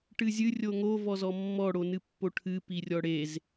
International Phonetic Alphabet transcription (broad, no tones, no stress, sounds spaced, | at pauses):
ʈ ɨ zʲ ɨ rʲ o ŋ o v ɔ z ɔ mː ɔ ɽ o n ɨ pː o ʈʰ ɨ p i rʲ ɔ ɽ e z